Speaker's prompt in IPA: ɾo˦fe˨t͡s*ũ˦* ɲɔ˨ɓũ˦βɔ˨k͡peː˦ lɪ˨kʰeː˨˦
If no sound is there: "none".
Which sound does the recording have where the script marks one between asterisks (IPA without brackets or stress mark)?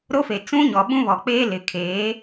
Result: ũ˦